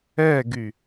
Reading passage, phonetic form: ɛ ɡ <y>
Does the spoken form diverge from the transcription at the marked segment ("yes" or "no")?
no